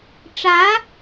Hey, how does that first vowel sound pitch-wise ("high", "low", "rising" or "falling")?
rising